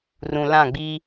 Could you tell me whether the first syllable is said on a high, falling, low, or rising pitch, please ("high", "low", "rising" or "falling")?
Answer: low